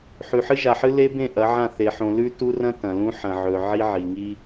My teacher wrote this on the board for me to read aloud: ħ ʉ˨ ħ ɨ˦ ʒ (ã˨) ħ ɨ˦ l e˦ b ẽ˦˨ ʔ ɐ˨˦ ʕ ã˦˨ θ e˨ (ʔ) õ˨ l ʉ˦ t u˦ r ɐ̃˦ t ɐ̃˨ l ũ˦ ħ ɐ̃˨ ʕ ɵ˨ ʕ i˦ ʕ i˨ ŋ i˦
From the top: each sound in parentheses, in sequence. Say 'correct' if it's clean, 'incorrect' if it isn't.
incorrect, incorrect

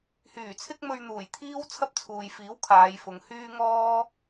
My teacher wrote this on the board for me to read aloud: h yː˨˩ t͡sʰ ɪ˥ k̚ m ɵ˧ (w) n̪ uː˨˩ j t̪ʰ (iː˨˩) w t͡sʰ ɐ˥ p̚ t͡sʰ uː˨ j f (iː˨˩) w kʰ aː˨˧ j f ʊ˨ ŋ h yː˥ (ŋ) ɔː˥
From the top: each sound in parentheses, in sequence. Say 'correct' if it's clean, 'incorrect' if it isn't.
incorrect, incorrect, incorrect, correct

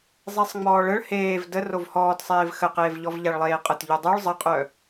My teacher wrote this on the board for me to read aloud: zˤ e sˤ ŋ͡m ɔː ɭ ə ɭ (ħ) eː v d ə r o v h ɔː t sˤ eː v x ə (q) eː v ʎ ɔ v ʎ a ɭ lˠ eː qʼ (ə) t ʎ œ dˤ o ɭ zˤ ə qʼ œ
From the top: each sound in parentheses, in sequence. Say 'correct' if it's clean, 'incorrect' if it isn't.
incorrect, correct, correct

